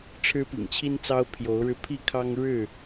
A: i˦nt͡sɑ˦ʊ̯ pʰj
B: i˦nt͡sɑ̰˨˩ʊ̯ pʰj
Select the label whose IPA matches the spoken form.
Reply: A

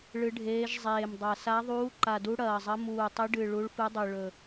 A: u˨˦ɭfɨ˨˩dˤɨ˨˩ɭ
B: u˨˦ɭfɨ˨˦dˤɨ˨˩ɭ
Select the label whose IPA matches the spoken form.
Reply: B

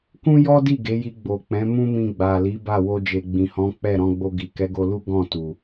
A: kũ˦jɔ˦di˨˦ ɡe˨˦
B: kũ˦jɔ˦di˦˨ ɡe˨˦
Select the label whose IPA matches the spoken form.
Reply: B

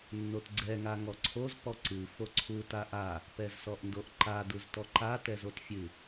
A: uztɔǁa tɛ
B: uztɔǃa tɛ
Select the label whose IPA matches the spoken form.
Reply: B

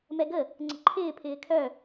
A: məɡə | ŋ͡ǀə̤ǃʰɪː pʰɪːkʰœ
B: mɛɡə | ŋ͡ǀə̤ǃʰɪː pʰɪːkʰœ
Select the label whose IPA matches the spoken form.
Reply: B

